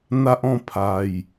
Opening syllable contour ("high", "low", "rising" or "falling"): high